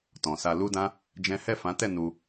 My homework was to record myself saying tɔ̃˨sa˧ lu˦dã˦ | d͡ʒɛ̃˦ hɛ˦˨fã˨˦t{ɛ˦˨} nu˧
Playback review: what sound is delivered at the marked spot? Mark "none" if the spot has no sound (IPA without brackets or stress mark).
ɛ˦˨